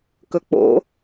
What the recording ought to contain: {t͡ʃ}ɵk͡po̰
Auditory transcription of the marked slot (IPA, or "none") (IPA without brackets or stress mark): k